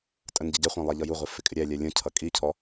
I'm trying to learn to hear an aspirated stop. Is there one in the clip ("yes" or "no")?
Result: yes